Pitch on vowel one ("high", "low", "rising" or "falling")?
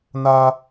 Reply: high